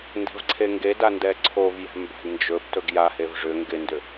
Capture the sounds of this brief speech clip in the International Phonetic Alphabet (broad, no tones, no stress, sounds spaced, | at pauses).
n d ɛ̤ v ǀʰ e ŋ ɡ e d a n d ɛ ǀʰ o v j ɛ̤ m b a̤ d n d͡ʒ ɵ b t ɵ ɡ j a h e v ʐ ʏ ŋ ɡ ɪ n d ʏ